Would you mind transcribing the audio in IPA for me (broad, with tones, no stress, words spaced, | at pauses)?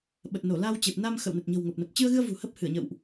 ɓə˨˩t̚ no˧˩la˧wt͡ɕe˨˩p̚ na˧mxə̰˧˨w nə˨˩t̚ɲə̤˨˩wŋo˨˩p̚ nə˨˩p̚t͡ɕɨ˧ə̯ɣɨ˧ə̯ vṳ˨˩hə˦˥p̚hɨ˧˩ə̯ ɲə̰˧˨wʔ